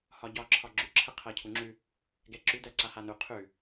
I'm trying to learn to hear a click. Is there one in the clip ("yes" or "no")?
yes